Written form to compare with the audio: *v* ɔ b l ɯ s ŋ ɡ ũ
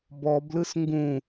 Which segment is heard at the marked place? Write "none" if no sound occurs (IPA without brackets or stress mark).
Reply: b